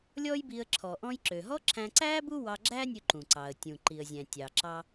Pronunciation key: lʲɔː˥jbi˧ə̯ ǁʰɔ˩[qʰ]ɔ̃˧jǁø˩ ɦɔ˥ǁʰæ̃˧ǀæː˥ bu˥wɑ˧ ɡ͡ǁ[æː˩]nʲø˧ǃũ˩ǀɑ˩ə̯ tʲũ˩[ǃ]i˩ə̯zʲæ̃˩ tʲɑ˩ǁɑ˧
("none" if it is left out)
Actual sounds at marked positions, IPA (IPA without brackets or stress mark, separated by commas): ʔ, æː˥, ǃ